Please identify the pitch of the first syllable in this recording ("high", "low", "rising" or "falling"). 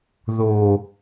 low